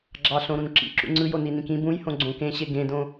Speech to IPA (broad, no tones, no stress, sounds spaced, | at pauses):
ɡ͡ǁ ɑ ɬ õ ɾ ũ n ǁ ḭ ǁ ṵ ŋ͡ǀ ɯ j o n i n ĩ k ĩ b ũ j h õ ɡ͡ǀ õ k ẽ ɕ e ɡ ẽ d õ